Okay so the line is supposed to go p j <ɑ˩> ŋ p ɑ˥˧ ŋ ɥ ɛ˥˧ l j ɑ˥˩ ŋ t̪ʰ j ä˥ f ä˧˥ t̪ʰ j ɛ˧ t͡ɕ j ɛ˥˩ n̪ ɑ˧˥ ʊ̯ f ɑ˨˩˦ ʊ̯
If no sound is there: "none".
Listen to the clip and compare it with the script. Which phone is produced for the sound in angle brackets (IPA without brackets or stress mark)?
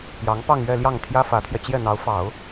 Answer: ɑ˧˥